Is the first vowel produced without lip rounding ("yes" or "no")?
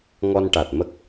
no